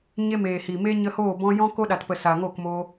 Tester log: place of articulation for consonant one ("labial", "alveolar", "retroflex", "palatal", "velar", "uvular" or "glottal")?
palatal